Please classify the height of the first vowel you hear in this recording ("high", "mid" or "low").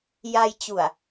low